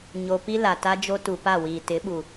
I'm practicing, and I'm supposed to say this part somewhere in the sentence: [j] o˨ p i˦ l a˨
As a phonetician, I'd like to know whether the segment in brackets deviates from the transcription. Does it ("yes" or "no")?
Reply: yes